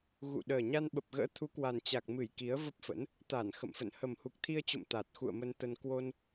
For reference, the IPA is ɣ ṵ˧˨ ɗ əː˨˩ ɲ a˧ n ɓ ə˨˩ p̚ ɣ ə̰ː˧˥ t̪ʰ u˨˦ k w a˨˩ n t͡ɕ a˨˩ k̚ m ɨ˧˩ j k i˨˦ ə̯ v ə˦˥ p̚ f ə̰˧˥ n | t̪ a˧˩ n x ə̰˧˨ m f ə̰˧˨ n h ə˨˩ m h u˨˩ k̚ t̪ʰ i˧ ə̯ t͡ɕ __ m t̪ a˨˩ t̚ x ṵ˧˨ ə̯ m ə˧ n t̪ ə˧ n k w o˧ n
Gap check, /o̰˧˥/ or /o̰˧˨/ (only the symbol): o̰˧˨